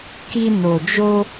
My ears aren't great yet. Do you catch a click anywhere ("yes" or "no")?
no